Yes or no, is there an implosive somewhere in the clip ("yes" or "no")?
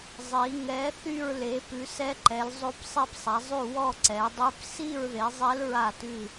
no